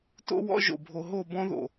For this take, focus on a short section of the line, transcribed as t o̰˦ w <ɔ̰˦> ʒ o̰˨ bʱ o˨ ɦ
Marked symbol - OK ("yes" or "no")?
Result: yes